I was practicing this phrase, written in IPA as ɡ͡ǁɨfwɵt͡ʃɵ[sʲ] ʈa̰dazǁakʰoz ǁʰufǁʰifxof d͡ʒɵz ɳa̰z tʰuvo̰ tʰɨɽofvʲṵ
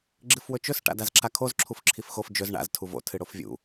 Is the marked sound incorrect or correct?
incorrect